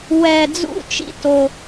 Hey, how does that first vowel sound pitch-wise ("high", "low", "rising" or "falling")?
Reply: low